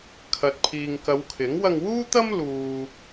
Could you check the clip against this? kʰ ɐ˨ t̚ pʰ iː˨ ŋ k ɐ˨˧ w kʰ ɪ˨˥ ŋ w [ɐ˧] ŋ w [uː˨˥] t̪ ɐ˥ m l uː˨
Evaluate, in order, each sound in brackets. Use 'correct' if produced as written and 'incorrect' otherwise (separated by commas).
correct, incorrect